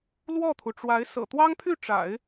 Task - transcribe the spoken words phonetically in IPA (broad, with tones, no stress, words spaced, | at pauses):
lwɔ˥˩t̪ʰu˩ʈ͡ʂwa˧˥ɪ̯ sɤ̰˨˩t̪wɑ˥ŋpʰy˥˩ ʈ͡ʂa̰˨˩˦ɪ̯